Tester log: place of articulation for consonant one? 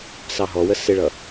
alveolar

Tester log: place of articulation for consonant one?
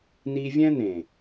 alveolar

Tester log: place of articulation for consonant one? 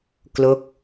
velar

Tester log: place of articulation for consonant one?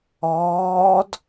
alveolar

